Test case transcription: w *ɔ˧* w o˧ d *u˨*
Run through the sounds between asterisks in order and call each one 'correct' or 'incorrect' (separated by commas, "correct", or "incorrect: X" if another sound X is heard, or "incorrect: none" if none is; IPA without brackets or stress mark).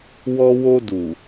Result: correct, correct